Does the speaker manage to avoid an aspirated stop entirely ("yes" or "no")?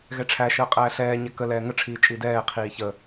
no